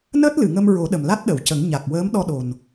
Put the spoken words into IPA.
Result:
n əː˦˥ t̚ l ɨ˨˩˨ ŋ ə˧ m ɹ o˨˩˦ ɗ ə˨˩ m l a˦˥ t̚ ɗ ə˨˩˨ w c ə˨˩˦ ŋ ɲ a˨˩ k̚ w əː˧˥ m ɗ ɔ˧ ɗ o˨˩ n

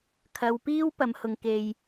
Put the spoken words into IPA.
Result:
kʰ ɐ˨˧ w p iː˥ w p ɐ˨˧ m h ʊ˨ ŋ k e˨ j

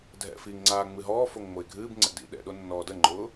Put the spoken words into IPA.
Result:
dʱ ɛ̰ f i ŋ ŋ͡ǀ aː ŋ͡m ɨ ɦ ɔː f o ŋ ŋ͡m o ɪ̯ ɡʱ ɨː b ŋ͡ǀ ɛ̰ d ḭ ɗ ɛ̰ ɗ o nː ɔː d ə ŋ͡ǃ ʊː

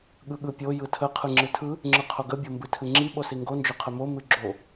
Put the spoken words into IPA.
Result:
ɠ ɯ ɠ ɯ pʲ o j ɯ tʰ ə qʰ ɯ ŋ͡ǁ ɨ tʰ ɯ | ŋ͡ǁ ɯ qʰ o ɡ ə bʲ o m b ɨ tʰ ɨ ŋ͡ǁ i ɓ o s i ŋ ɡ o n d͡ʒ o qʰ ə m o m ɨ ɡ͡ǁ o

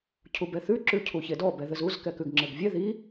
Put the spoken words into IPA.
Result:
cʰ u b ɛ θ ʉ ǁ ʉ cʰ u ç e d ɔ b ɛ ð ɘ z u z k ɛ k ʉ ɡ ŋ͡ǁ ɘ ɡ vʲ ɛ ð i

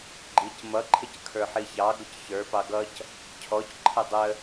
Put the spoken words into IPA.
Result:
ɡ͡ǃ i c m ʌ ǃʰ ɪ c kʰ ə˞ ħ i ç ɑ ɡ ʊ c ç ə˞ p ɑ ɡ ʌ c | cʰ ɔ c ǃʰ ə dˤ ə

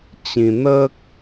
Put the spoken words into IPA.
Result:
t͡ɕ ĩ˧ n̪ ə˦ k̚

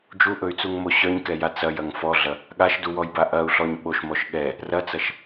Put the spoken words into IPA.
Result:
d͡ʒ u ʔ ɵ y̯ t͡s u ŋ m o ɕ œ ɲ k ɛ j a t͡s ɐ j ɐ ŋ f ɔ ɮ ɐ | ɠ a ʃ d u w ɔ j b a ʔ ɐ u̯ ɬ ɔ ɲ ɓ o ʃ m ɔ ʃ ɠ ɛ | r ɐ t͡s ɐ ʃ

